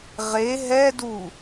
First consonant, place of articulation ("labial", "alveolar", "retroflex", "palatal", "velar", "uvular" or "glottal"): uvular